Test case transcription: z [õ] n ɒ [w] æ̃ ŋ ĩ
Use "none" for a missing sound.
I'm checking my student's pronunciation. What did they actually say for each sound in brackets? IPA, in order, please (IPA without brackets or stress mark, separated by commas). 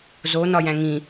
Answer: o, j